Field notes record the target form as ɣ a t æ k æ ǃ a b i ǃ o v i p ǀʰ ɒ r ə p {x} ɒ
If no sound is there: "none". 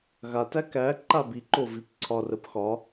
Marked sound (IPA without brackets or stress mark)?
x